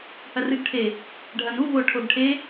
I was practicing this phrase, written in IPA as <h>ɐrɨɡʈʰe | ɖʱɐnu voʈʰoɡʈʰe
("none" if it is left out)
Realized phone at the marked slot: h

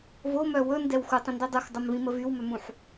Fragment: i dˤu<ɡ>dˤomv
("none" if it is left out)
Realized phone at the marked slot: x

